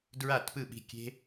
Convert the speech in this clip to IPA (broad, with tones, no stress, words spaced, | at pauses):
dɹa˥˩tpɯ˥˩ɓi̤˥˩kʲe̤˥